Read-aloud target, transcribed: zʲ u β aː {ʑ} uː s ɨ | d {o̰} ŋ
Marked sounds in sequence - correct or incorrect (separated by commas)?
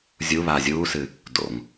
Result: incorrect, correct